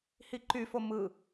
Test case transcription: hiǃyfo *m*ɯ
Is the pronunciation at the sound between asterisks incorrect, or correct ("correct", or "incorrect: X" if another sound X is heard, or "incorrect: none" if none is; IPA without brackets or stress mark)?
correct